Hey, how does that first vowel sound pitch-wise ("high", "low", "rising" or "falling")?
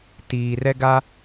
low